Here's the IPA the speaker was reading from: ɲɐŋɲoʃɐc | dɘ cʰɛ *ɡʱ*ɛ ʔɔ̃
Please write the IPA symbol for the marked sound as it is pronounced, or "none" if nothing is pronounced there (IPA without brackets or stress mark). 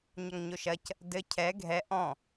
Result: ɡʱ